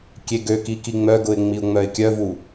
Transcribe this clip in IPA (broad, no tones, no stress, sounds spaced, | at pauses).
kʲ e ɡ ø k i k i ŋ͡m œ ɡ ʊ ɪ̯ ŋ͡m i ʊ̯ ŋ͡m œ ɪ̯ kʲ œ v u